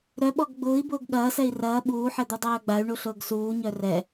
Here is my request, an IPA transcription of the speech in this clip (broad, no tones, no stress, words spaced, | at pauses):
ɾœɓɔɡ ɡ͡bʊːi̯bʊːɡ ɠɐːsɛi̯ rɐː ɓuːħɛd̪u dˤœːɡ͡bay̯ɳuɬʊːɡ suːɲœ rɛ